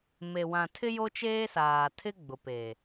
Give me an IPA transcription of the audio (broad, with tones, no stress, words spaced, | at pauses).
me˨wã˨tʰɪ˦ jo˦t͡ʃeː˦saː˨ tʰɪ˦ɡ͡bʊ˨pe˨